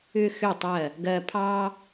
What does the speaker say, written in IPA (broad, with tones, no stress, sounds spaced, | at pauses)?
ʏ˧ x ʏ˧˩ tˤ ɜ˧˩ | ɡ ɜ˧ pʰ ɑ˥